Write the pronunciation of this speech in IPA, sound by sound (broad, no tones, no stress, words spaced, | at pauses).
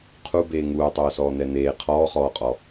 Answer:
qʰubeː ŋuːtˤoːsɔːn̪ɛ n̪eː qʰɔːχɔːqʼɔ